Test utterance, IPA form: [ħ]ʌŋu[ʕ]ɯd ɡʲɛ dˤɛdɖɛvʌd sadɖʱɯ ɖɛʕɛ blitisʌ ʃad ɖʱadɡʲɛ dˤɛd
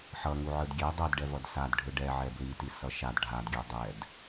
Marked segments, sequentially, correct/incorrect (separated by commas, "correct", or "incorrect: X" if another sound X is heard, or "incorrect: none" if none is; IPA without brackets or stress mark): correct, correct